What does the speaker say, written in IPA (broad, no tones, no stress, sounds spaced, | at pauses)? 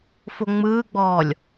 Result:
f o ŋ͡m ɯː ɡ͡b ɔː lʲ